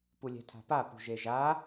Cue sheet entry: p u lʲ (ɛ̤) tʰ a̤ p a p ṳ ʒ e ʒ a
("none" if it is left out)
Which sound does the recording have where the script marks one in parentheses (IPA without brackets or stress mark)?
ɛ̤